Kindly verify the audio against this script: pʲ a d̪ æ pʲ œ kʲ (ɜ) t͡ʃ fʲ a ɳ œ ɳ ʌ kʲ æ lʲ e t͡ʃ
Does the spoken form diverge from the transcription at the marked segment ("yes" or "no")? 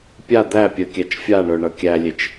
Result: yes